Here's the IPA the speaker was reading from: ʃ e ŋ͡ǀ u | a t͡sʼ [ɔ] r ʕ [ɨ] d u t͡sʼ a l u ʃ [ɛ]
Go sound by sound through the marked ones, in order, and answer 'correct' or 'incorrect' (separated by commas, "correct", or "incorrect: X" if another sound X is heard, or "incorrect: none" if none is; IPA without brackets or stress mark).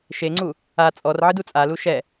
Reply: correct, correct, correct